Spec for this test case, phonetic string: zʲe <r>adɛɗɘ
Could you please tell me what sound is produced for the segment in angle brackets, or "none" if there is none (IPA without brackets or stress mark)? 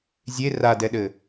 r